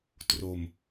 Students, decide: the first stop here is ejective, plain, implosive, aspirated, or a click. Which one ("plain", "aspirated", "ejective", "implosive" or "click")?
plain